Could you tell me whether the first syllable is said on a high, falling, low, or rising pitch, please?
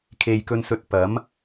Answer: low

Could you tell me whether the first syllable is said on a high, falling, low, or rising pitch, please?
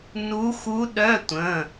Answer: rising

